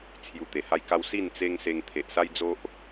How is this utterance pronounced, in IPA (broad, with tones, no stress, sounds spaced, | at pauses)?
t͡sʰ j u˧ t̪ e˨˩ h a˦ j k a˦ w s i˥˧ n t͡s e˦ ŋ s e˧ ŋ t̪ʰ e˨ ʔ s a˦ j d͡z o˦ ʔ